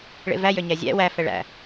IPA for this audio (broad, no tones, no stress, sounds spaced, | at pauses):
ɭ ḛ v æ j ø ɲ æ zʲ æ̰ w æ f ɛ ɭ æ̰